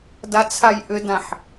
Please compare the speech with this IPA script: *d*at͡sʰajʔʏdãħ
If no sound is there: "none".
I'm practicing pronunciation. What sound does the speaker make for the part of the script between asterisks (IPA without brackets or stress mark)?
d